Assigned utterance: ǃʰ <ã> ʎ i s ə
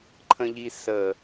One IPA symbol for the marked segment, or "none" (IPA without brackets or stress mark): ə̃